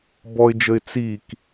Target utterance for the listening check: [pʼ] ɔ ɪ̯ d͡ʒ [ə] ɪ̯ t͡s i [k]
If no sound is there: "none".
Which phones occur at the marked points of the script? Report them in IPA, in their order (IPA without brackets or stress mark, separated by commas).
b, ə, k